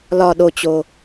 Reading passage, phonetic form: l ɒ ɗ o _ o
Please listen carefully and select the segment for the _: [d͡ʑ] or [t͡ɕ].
t͡ɕ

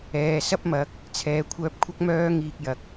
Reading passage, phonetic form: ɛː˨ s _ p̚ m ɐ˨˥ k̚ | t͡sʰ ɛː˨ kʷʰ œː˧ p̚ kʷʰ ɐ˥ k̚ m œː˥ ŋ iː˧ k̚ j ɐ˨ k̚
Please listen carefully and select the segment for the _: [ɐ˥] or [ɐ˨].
ɐ˥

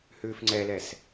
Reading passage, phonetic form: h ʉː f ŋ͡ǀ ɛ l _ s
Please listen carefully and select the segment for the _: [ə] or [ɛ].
ɛ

